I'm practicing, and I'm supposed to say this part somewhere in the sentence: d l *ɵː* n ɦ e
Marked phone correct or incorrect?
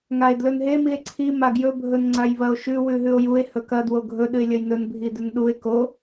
incorrect